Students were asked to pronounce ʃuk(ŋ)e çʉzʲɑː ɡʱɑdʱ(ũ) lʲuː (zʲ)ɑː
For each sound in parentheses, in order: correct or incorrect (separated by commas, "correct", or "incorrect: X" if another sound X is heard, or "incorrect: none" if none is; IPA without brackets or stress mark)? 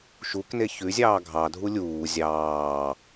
incorrect: n, incorrect: u, correct